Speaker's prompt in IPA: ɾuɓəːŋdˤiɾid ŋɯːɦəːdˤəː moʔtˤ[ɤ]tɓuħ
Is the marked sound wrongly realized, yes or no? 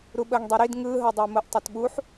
yes